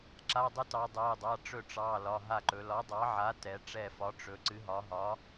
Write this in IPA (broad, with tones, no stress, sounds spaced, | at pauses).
ǁ a˩˧˩ dˤ ɨ˩˥ t ɑ˩˧ dˤ ɛ˩˧˩ dˤ a˩˧˩ ʈ͡ʂ ɵ˧˩ ʈ͡ʂ ɑ˩˧˩ l ɒ˩˧˩ ɦ a˧˩ ǃ ɵ˩˧ l ɒ˩˥ dˤ ɑ˩˥ ʕ a˩˥ t ɛ˩˧ ʈ͡ʂ ɛ˧˩ f ɒ˩˥ ʈ͡ʂ ɵ˩˧ ǀ ɨ˩˥ ɦ ɒ˩˥ ɦ ɒ˩˥